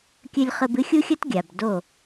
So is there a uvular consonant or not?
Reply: yes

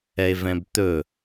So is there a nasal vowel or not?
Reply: yes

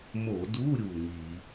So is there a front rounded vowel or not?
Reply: no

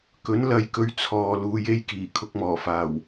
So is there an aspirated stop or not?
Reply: yes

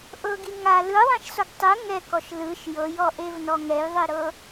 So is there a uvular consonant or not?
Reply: no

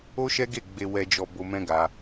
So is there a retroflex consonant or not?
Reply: no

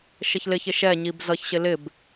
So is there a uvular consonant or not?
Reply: no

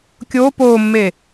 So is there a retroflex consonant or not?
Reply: no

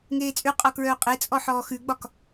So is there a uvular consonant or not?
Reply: yes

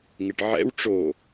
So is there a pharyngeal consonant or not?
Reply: yes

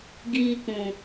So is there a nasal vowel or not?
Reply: yes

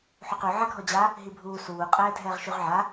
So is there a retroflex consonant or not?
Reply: no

